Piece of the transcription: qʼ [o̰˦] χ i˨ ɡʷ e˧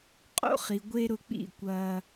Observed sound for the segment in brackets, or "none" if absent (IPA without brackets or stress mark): o̰˦